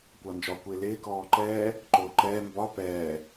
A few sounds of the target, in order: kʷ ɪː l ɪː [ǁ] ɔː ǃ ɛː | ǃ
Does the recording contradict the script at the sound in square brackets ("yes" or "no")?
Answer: yes